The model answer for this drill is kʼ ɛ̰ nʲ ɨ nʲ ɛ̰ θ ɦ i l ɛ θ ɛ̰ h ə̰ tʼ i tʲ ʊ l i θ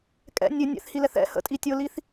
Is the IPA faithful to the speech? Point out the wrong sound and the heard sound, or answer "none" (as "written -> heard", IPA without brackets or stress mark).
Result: ɦ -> h